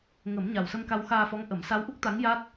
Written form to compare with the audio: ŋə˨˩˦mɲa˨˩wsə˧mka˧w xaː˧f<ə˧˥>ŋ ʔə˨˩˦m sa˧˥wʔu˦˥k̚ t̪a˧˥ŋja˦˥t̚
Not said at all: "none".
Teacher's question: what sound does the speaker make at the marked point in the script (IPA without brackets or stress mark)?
ɔ˧˥